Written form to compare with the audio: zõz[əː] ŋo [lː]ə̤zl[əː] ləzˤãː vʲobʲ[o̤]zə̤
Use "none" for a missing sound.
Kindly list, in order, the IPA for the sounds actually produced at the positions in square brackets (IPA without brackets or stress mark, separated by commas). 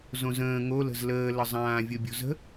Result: ə̃ː, l, əː, o̤